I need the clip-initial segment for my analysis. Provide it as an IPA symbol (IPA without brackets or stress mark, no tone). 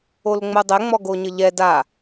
o